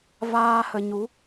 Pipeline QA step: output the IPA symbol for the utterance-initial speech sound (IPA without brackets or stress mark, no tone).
v